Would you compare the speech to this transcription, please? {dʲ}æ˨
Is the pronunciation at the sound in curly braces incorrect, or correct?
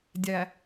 correct